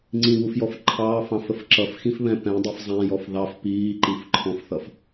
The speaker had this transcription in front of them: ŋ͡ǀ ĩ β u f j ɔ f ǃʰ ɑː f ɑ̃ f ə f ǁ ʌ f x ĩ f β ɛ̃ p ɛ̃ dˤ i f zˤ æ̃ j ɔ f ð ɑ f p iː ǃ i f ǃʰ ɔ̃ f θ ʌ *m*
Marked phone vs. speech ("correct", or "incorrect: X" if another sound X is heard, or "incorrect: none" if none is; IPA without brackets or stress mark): incorrect: f